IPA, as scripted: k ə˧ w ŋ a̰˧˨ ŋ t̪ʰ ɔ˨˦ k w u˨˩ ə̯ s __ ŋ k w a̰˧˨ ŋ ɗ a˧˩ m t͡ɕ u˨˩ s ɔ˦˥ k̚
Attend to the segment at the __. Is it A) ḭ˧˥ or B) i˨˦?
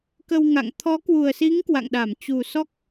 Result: B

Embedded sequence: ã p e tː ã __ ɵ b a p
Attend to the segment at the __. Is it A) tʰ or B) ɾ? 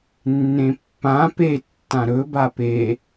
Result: B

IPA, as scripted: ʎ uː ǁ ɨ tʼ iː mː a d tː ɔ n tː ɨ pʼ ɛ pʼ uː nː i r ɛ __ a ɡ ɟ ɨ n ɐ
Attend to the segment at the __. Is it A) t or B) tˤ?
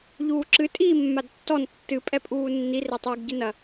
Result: B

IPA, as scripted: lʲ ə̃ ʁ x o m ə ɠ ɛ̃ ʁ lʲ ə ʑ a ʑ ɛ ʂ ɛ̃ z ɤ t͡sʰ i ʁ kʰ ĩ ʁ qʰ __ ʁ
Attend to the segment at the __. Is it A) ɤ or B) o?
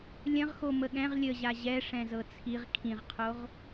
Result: B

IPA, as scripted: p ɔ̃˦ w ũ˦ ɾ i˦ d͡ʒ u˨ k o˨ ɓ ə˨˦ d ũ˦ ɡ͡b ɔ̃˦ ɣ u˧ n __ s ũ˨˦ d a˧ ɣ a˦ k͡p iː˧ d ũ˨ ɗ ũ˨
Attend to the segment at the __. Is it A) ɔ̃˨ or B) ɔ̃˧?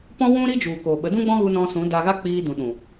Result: B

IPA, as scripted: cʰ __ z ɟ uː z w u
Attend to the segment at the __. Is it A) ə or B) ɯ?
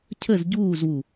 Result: A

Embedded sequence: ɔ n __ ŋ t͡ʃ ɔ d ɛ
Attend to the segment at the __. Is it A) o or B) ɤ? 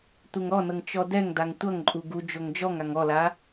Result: B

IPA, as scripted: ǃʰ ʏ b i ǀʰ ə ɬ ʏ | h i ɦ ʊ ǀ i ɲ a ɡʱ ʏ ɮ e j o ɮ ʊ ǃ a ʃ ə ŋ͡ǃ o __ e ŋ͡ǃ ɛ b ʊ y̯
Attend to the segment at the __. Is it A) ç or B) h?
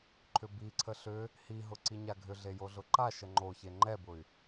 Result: A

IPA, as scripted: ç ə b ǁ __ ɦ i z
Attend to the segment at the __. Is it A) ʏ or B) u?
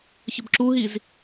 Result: B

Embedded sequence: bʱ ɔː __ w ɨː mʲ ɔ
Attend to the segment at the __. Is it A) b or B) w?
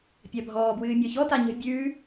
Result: A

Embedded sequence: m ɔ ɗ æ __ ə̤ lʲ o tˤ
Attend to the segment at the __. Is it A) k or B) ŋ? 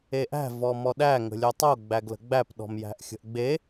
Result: B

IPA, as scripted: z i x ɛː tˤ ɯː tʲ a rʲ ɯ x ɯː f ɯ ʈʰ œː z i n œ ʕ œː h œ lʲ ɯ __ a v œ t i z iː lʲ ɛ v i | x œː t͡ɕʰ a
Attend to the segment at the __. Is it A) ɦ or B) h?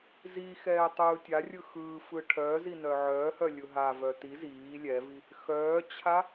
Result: A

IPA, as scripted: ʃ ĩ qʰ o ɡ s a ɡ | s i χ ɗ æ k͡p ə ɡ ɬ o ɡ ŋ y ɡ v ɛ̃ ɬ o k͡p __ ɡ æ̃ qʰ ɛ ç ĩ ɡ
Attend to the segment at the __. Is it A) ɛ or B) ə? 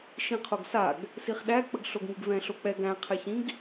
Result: A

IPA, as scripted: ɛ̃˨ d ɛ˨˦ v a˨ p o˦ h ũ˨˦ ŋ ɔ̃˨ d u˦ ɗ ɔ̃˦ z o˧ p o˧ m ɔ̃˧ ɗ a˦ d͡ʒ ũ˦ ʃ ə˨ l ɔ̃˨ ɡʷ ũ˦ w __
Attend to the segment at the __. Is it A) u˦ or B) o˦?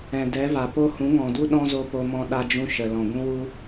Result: A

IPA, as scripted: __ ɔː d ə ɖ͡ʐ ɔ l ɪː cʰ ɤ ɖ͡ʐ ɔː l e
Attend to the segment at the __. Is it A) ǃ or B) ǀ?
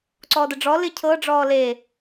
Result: B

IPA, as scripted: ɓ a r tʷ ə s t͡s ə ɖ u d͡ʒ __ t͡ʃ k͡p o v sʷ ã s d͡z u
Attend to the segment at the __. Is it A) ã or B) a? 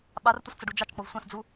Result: B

